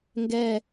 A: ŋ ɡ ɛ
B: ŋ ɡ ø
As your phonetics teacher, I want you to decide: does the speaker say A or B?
A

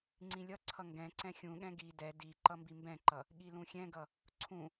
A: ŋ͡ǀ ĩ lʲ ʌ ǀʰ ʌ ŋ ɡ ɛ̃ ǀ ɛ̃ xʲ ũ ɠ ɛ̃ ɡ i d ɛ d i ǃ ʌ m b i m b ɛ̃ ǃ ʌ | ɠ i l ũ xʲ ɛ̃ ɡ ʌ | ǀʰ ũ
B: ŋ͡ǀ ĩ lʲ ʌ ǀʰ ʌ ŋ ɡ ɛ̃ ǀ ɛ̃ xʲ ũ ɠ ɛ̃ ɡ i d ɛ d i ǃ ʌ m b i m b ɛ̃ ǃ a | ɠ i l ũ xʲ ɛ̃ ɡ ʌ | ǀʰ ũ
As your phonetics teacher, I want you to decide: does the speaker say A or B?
A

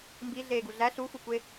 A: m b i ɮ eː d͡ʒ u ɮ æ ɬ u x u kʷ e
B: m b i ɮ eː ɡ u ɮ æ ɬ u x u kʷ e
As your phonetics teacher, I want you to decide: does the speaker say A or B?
B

